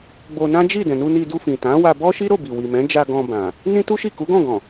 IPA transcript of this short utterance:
ɡ͡bo˧nã˦d͡ʒi˦˨ dɛ̃˨nu˧ ni˧du˧fĩ˨ tã˨˦wa˧bɔ˦ ʃi˦ɾo˦˨bi˨ wi˨mɛ̃˨˦d͡ʒa˧ ɡɔ̃˧bã˨ | nĩ˦tu˦ʃi˦˨ ku˨˦ɡɔ̃˦˨ɡɔ̃˨

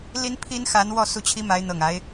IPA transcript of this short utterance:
li˥npʰi˥n xa˧˥n wɔ˥˧su˥˩t͡ɕʰi˥ma˧˥ɪ̯ n̪ɤ˨˩ŋa˧˥ɪ̯

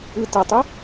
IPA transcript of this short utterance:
ɯtətˤʏ

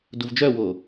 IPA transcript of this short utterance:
duvd͡ʒœwo

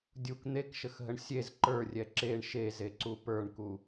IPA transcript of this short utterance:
dʲuk n̪ekʃəxɦəɳ sʲez ǃə˞rʲɛ ǁeɳ ʃezeǀu pə˞ɳku

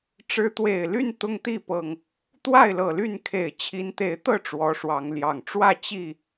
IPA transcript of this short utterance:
ʈ͡ʂɻ̩˨˦t̪we˨˩ɪ̯ly˥˨n t̪ʊ˦ŋt̪i˥˨pɤ˨˩ŋ | t̪wa˥˨ɪ̯lɤ˨˩ly˥˨n kʰe˨˩ɪ̯t͡ɕʰi˨˦nt̪e˨˦ɪ̯t̪ɤ˥˨ ʈ͡ʂwɔ˨˦ʂwɑ˨˦ŋljɑ˨˩ŋ ʈ͡ʂwä˥˨ t͡ɕi˥˨

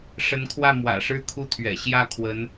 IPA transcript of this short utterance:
ʂə˧˥nkʰwä˥˩ mwä̰˨˩ʂɻ̩˥˧kʰu˥˩t̪ʰɥɛ̰˨˩ ɕjä˥˩kʰwə˧˥n

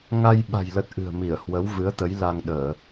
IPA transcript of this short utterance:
ŋa˧jɓa̤˨˩jlə˨˩t̚ ʔɨ̤˨˩ə̯mi˧˩ə̯ hwə˨˦wvɨ˨˦ə̯t̪ə˨˦j la˧ŋɗəː˧˩˨

